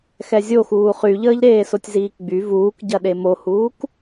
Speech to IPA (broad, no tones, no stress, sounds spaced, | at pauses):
x ɛ zʲ o x uː χ y ʎ əː ʎ ɾ eː s o tʲ z iː k ɡ͡b y v uː k ɟ ɐ ɗ e m o h uː k